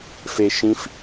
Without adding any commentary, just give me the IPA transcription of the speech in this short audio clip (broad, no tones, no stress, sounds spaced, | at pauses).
f e ʃ ĩ f